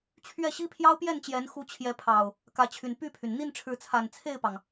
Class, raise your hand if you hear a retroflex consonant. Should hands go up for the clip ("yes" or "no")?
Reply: yes